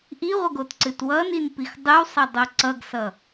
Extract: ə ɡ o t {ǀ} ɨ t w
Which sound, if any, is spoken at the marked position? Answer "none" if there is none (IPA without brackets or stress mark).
ǀ